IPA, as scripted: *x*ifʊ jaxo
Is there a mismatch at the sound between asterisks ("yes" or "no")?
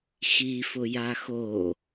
no